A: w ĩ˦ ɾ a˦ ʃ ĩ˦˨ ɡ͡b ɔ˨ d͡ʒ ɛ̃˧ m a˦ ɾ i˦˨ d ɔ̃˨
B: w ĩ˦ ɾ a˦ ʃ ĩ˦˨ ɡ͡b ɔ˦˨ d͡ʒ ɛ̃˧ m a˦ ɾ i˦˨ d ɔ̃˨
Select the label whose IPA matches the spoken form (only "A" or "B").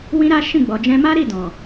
A